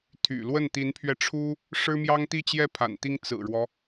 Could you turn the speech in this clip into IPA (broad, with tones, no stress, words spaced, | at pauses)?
t̪ʰy̰˨˩ lwə˥˩nt̪i˧˥npʰɥɛ˧ʈ͡ʂʰu˥ | ʂɻ̩˥mjɑ˥ŋt̪i˥˧t͡ɕjɛ˥˩ pʰa̰˨˩nt̪i˥ŋ t͡sɹ̩˨˩ɻwɔ˦